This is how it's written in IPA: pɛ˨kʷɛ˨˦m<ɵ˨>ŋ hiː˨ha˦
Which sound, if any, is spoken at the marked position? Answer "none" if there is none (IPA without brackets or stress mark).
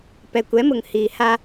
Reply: ʊ˨